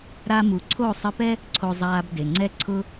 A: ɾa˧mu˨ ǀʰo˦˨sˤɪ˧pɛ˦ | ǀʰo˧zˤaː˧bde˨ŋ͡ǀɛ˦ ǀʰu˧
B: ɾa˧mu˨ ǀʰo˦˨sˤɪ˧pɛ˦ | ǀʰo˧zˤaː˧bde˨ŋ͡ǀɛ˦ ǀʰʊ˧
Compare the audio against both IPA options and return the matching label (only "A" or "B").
B